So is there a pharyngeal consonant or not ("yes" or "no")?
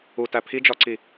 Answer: no